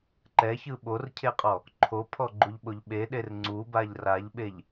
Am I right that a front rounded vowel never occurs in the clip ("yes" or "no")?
yes